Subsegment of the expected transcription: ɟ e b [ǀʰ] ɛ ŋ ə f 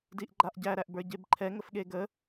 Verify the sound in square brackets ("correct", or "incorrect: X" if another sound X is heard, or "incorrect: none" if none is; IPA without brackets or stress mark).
incorrect: ǃʰ